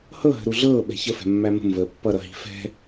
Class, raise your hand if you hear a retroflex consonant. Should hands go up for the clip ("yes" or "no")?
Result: no